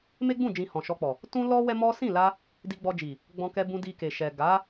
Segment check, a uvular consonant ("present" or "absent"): absent